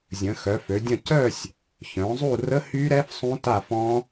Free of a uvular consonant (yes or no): yes